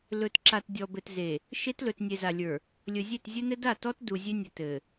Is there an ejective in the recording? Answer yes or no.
no